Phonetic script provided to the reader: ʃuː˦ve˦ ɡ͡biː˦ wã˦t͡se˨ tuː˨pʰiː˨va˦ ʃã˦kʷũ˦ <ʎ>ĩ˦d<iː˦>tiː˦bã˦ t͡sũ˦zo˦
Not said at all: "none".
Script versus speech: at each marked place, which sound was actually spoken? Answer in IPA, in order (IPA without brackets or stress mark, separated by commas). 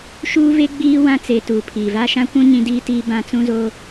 ɲ, iː˦